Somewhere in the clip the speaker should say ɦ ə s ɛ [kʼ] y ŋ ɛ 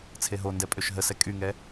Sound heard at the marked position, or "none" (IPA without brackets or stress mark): kʼ